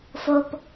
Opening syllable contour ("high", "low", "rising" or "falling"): low